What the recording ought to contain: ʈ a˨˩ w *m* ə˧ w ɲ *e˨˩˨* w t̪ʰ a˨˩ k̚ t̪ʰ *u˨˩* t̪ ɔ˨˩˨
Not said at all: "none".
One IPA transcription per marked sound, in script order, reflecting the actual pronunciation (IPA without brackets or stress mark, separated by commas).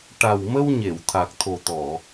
m, e˨˩˨, o˨˩